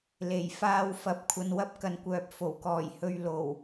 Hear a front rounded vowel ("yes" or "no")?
yes